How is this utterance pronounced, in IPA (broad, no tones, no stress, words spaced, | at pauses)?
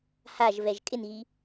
haʒ vɛʒkʼɪnɣi